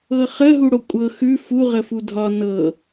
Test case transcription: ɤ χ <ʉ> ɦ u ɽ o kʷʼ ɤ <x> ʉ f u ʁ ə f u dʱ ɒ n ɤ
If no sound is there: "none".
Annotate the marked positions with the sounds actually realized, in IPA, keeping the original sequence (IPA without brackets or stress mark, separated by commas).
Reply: ə, x